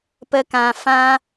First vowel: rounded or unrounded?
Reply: unrounded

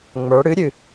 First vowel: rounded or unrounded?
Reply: unrounded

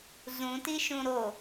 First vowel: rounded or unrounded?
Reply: rounded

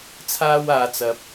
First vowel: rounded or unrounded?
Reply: unrounded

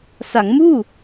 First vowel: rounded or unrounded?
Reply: unrounded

